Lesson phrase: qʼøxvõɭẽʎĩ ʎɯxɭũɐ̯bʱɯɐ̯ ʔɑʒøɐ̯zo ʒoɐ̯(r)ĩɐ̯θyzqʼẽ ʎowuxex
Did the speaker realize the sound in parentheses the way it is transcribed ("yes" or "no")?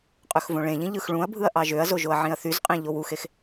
no